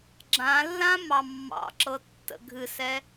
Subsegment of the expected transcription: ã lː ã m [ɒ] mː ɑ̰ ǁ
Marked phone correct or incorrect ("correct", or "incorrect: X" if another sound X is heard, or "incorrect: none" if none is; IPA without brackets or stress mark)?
incorrect: ɑ